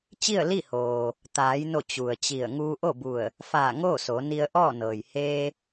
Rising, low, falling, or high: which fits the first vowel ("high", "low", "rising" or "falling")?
falling